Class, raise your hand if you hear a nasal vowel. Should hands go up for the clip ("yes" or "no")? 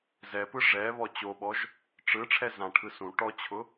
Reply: yes